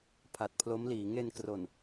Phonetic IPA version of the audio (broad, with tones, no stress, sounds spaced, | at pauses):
pʰ a˨˩ t̚ pʰ l o˦˥ m l iː˩˦ ŋ e˧ n k r o˨˩ n